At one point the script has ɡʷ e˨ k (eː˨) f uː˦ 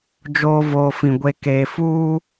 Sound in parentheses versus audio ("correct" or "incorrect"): correct